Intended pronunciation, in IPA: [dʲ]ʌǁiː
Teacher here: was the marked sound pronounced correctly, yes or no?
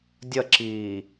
yes